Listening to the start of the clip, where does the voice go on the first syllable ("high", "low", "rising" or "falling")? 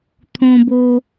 high